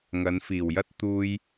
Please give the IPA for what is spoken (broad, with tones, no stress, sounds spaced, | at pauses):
ŋ ɐ˨˧ n f iː˨˩ w j ɐ˥ t̚ t̪ uː˥ j